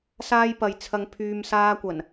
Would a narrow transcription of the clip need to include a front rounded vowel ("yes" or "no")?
yes